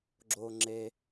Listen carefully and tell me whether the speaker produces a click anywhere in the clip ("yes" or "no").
yes